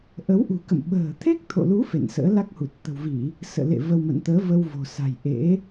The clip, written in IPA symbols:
ʔ ə˨˦ w ʔ ṳ˨˩ k ə̰˧˨ m ɓ ə̤ː˨˩ t̪ʰ e˦˥ k̚ t̪ʰ o̰˧˨ l u˨˦ f ḛ˧˨ n s ə̰ː˧˥ l a˦˥ k̚ h u˨˩ t̚ t̪ ə̤˨˩ w v i˧˩˨ | s ə̰ː˧˨ l ḛ˧˨ v ə˧ w m ə̰˧˨ n t̪ əː˨˦ v ə˧ w v o̤˨˩ s a̤˨˩ j ʔ ḛ˧˥

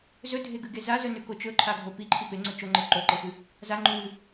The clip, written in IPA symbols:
z ɵ dʱ e ɡ ʉ ɡ e z a z ɵ n ʉ k o t͡ʃ ɵ ǃʰ a ɡʱ o p i ǃʰ i p e ŋ͡ǀ ɵ t͡ʃ o ŋ͡ǃ e ǃ o ǃ e f ɨ | z a ŋ͡ǃ ʉ w ɨ

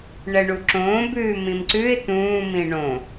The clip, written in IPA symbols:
ɳ ɛ ɳ u ǁ õː b ʉː m ĩ m ǀ ʉ ɪ̯ t̪ ũː m ĩ ɳ õ

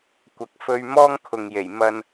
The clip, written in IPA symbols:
kʷ ɐ˨ k̚ f ɵ˧ ɥ m ɔː˥ ŋ kʰ ʊ˨ ŋ j e˨˩ j m ɐ˧ n

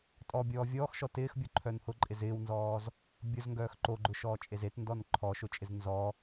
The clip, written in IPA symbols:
tʼ ɔ bʲ ɔː vʲ ɔː x ʃ ɔ t ɪː x bʲ o ǃʰ œ n h ʊ ǃʼ ɪ z ɪː w n z ɔː z | bʲ ʊ z ŋ ɡ œː x ǃ o ɡ͡ǃ ʊ ʃ ɔː t͡ʃʼ e z e t n d ɔ n ǃʰ ɔ ʃ ʊ t͡ʃʼ ɪ z n z ɔ

